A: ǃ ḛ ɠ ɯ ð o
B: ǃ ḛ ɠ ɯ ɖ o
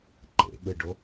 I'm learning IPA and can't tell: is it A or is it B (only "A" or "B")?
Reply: B